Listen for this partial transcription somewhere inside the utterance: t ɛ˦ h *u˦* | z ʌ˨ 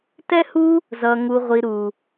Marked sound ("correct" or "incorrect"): correct